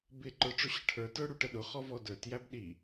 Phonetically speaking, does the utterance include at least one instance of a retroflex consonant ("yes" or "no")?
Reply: yes